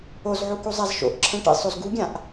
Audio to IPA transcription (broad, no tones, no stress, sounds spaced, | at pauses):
o z ʕ u k u zˤ a z ʃ o̰ ʔ ǁʰ ɛ̃ ʈ ḭ sˤ o z ɡ u ɡʲ ã ʔ